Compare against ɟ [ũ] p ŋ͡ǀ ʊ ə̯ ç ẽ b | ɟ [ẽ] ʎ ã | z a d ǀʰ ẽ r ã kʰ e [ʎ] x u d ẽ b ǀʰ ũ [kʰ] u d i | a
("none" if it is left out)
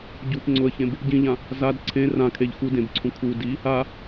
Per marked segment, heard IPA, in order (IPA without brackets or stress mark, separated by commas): u, ĩ, ʎ, kʰ